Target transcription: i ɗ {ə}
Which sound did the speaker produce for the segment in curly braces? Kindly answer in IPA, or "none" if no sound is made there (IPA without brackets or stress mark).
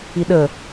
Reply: ə